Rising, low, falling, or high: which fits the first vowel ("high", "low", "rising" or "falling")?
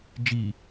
low